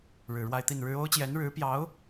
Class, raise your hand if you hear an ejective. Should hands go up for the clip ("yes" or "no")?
no